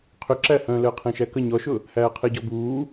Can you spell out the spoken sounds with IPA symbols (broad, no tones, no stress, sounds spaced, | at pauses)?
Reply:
qʰ ʏ ǁ æ h œ̃ː l əː qʰ ẽ ʃ æ k ə ɲ ɔ ʃ ʊ | h æː qʰ e ɟ ɔ b uː